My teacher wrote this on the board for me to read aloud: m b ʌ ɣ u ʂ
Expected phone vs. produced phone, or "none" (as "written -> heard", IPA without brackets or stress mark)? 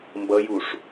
ɣ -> j